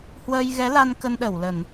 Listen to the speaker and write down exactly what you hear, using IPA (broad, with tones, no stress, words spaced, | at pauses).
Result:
hwəː˧jɣɛ˨˦la˧n kə˧nɗə˧˩wlə˧˩˨n